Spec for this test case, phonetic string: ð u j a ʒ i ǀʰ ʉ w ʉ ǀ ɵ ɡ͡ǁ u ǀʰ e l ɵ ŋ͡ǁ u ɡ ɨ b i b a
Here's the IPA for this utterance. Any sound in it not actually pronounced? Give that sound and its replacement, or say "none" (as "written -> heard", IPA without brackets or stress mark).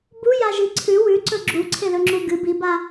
ð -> b